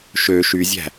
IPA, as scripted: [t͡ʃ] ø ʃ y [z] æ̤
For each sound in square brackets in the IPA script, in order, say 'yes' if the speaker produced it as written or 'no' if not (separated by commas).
no, no